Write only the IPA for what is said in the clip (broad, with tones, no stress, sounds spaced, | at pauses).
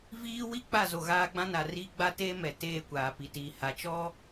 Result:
v iː˦ w i˦ k͡p a˦˨ z o˨ ɣ aː˦ ɡ͡b ã˦ n a˨ r iː˦ ɡ͡b a˦ t eː˦ m ɛ˨ t eː˦˨ kʷ aː˨ p i˨ t iː˨ h a˨ t͡ʃ ɔ˦